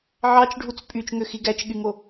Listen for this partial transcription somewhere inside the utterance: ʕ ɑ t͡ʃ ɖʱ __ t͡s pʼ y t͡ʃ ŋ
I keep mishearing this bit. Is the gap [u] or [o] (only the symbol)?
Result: u